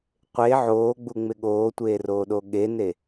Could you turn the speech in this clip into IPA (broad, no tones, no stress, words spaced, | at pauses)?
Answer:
qʷe ʕoːɡ͡buŋ͡mɪ ɠoːtʷeːroːɗo ɠene